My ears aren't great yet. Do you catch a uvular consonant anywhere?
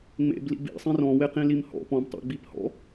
yes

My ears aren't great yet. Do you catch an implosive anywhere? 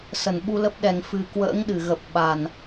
yes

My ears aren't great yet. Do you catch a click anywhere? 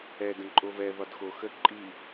yes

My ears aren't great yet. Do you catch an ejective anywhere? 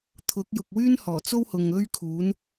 no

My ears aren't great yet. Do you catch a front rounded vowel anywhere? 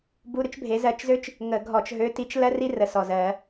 yes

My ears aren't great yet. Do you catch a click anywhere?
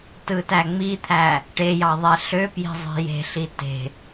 no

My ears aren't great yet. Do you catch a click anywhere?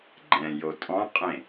yes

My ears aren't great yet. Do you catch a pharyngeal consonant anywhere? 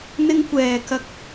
no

